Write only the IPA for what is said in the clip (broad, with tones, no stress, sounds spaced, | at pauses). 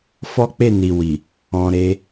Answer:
f ɔ˦ k͡p e˦˨ n i˨ w i˨ | ɔ̃˨ ɾ e˧